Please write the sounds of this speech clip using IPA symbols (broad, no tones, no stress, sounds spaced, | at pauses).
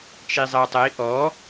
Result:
t͡ʃ i zˤ ə u̯ tˤ ə i̯ ʔ ɔ